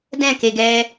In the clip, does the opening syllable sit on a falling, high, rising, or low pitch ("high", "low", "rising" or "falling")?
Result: falling